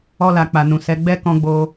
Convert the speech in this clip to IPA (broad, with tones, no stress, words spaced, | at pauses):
ɔ˧la˨k͡pa˨nũ˨ sɛ˨˦ɡ͡bɛ˦ kɔ̃˦ɡ͡bo˦